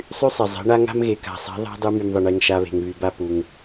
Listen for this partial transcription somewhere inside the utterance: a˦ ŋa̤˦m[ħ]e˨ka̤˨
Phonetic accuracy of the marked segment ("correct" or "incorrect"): incorrect